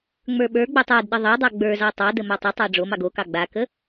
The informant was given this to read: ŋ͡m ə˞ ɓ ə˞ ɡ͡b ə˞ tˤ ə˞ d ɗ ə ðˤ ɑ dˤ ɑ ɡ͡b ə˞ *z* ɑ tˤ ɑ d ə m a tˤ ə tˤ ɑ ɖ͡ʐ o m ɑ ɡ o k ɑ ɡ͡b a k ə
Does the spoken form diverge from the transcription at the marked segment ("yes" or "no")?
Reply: no